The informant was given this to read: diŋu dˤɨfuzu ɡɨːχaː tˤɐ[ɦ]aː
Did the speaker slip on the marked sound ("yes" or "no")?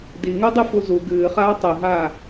no